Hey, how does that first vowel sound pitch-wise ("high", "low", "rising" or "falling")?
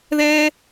high